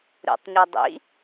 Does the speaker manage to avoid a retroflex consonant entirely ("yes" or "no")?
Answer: yes